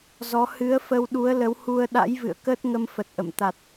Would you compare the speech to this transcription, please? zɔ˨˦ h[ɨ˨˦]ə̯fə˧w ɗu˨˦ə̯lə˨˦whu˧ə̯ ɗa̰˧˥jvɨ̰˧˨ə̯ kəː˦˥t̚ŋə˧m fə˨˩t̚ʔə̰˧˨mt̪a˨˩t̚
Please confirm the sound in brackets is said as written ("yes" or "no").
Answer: yes